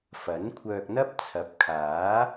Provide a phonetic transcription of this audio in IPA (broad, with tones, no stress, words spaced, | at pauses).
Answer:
fɐ˨˥nkʷʰœː˧k̚n̪ɐ˥p̚ t͡sʰɐ˨˥p̚kʰaː˨˥